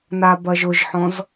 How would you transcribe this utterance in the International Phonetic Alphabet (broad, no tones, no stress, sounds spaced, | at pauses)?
n a b ɐ ʒ ʊ ʒ ħ ɔ̃ z